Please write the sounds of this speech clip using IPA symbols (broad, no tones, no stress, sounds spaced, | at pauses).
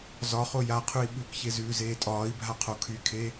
z ɒ χ o j a qʰ ʉ i̯ ɓ ʉ k ç e z ʉː z eː tʼ ɒː i̯ bʱ a qʰ o kʰ y kʰ e